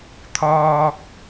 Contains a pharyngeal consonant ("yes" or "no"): no